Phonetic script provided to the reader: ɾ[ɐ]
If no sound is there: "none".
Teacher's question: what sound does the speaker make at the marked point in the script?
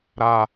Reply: a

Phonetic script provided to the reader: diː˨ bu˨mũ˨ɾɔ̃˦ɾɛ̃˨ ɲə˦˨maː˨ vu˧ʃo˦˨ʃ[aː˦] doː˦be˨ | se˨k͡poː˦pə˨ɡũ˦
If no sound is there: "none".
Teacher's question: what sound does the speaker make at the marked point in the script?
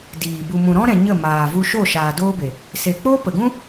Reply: aː˨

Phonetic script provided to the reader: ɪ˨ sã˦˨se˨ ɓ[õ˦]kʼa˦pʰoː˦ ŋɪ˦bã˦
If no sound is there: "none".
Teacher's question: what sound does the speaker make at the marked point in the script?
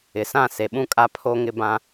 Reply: ũ˦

